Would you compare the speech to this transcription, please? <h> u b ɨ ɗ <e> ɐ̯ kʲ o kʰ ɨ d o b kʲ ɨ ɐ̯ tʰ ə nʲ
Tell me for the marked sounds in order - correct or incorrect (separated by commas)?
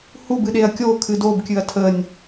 correct, correct